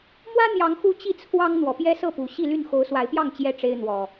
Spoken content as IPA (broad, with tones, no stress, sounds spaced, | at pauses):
m w ä˦ n̪ j ɑ˨˦ ŋ x u˦ t͡ɕ i˥˨ t͡sʰ w ɑ˦ ŋ n̪ w ɔ˨˩ p j ɛ˦ s ɤ˥˨ p u˨˩ ɕ i˥˨ l y˥˨ n x o˨˦ ʊ̯ s w a˨˦ ɪ̯ p j ɑ˥˨ ŋ t͡ɕ j ɛ˦ ʈ͡ʂ e˦ ɪ̯ n̪ w ɔ˨˩